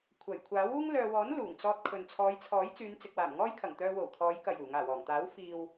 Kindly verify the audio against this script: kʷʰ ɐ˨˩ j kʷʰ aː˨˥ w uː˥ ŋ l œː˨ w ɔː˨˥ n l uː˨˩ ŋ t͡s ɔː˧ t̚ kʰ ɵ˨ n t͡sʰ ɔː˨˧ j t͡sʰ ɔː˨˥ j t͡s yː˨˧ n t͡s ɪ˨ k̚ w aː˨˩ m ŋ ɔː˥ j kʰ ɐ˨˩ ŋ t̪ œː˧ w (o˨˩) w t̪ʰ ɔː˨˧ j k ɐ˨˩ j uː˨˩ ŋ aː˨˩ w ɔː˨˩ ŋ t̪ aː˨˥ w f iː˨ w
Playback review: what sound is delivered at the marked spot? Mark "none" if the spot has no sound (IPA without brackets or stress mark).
o˨˩